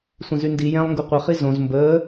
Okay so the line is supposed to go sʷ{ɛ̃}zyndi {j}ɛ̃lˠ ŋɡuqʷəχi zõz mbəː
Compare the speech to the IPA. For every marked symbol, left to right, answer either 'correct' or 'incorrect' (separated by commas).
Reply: incorrect, correct